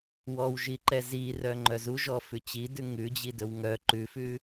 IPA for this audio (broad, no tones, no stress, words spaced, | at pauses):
wɔwʒiǃɛ zirœ ŋ͡ǃœzu ʒɔfʉt͡ɕidʉ ŋʉd͡ʑidɵw ŋœ ǃʉfʉ